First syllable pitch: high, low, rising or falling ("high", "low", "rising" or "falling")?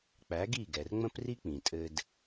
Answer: rising